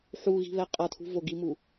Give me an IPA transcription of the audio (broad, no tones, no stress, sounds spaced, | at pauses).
ħ u ɣ i̤ β ɛ qʼ ʌ tʰ ṳ v o ɡ i m u